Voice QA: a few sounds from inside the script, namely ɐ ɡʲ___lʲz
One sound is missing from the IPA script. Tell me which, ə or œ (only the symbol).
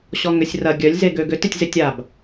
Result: œ